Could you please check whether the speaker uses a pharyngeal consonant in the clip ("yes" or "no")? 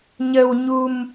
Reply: no